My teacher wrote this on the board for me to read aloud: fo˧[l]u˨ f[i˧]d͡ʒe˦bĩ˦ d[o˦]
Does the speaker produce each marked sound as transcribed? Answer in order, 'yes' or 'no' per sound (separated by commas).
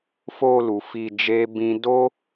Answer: yes, yes, yes